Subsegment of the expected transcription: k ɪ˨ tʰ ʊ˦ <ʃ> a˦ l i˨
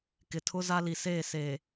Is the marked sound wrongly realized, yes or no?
yes